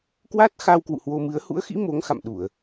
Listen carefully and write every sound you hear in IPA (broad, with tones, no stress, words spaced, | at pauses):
kwa˦˥t̚ xa˧wkwṵ˧˨ hwo˧mɨ˨˦ə̯ hṵ˧˥ə̯xḭ˧˥ mo˨˦ŋxa̰˧˨mɗu˧˩˨ə̯